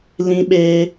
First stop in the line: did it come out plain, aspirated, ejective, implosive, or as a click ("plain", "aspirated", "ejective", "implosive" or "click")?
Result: implosive